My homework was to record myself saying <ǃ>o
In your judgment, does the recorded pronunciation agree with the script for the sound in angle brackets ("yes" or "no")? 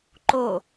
yes